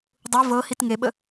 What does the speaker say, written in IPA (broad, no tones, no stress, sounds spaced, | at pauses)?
dˤ u v ɤ h i t ŋ e ɓ ə